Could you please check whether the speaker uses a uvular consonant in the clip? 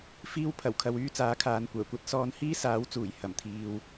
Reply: no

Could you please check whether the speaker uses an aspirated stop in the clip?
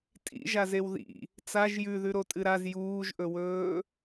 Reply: no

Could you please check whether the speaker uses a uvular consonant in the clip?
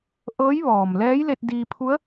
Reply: no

